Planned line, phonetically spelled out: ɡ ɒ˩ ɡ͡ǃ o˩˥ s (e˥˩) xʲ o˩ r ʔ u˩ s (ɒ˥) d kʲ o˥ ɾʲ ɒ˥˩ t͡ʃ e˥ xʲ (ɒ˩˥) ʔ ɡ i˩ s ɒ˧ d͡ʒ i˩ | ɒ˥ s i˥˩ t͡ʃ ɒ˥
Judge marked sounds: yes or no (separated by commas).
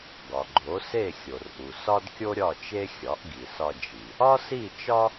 yes, yes, yes